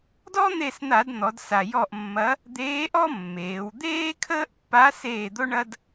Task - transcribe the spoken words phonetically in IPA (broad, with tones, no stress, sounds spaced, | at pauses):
d ɔ˥ n̪ e˦˨ s n̪ a˧˩˧ d n̪ ɔ˩˧ d s a˨˩ j ɔ˦˨ ʔ mː ɐ˧˥ | d̪ eː˧˥ ʔ ɔ˥ mː eː˩˧ w d̪ eː˥ kʰ əː˥ ʔ pː a˧˥ s eː˦˨ d̪ o˥ ɳ ɐ˥ d